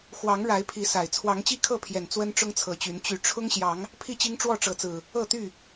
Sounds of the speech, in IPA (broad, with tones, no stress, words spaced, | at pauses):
xwɑ˨˦ŋ ɻa˨˦ɪ̯pʰi˨˦ sa˨˩ɪ̯ t͡sʰwɑ˨˦ŋt͡ɕi˥˨kʰɤ˥˨pʰjɛ˨˩n t͡swə˦nʈ͡ʂʊ˦ŋt͡sʰɤ˨˦t͡ɕy˨˦n t͡ɕy˨˩ʈ͡ʂʰʊ˦ŋɕjɑ˨˦ŋ | pʰi˥˨t͡ɕi˦ŋ ʈ͡ʂwɔ˥˨ʈ͡ʂɤ˨˦t͡sɹ̩˨˩ | ɤ˥˨t̪y˥˨